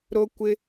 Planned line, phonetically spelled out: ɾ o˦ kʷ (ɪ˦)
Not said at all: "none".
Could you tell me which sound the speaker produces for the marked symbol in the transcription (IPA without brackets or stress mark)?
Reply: ɪ˦